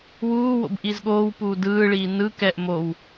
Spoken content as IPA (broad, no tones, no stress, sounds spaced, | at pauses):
w uː w o̰ b ʔ i z ɠ oː w p uː d ɯː ɭ iː n ɯ k ɛ ʔ m o w